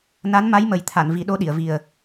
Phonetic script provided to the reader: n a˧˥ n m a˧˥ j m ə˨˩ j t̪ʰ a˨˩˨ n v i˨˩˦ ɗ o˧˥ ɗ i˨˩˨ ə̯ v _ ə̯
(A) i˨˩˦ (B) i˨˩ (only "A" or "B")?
B